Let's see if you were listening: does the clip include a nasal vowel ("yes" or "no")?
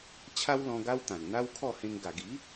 yes